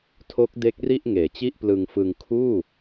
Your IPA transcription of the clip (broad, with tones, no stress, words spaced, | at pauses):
tʰo˦˥k̚ de˦˥k̚ri˥˩ʔŋeː˩˦t͡ɕi˥˩ʔ plɯ˧ŋfɯ˧ŋ kʰuː˥˩